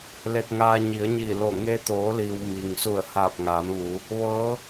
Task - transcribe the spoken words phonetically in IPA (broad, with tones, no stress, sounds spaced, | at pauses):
l e˧ t̚ ŋ aː˧ ɲ i˩˧ ə̯ ɲ iː˧˩ l o˧˩ ŋ e˧ t̪ oː˩˧ l iː˩ w m iː˩ ŋ s u˧˩ ə̯ h aː˧˩ p̚ ŋ aː˩˧ m ʋ u˩˧ | ʋ ɤː˧˥